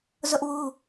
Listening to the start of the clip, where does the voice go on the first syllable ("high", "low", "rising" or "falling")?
high